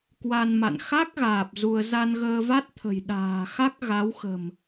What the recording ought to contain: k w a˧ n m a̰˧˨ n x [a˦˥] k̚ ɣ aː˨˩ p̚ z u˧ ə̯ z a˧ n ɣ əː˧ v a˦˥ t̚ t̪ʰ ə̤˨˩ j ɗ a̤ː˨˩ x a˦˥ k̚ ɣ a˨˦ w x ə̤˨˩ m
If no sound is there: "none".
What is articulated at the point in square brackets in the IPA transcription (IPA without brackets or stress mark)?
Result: a˦˥